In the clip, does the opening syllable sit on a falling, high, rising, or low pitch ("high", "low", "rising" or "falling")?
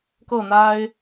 falling